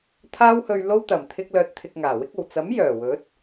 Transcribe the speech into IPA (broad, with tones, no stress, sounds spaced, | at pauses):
t̪ʰ aː˧ w h ɵ˨ ɥ l o˧ w t̪ ɐ˨˩ m t̪ʰ ɪ˧ k̚ l œː˧ t̚ t̪ʰ ɪ˧ k̚ ŋ aː˨˩ w ɪ˥ k̚ o˨˩ w t͡s ɐ˨˥ m j œː˨˩ w ɵ˨˥ t̚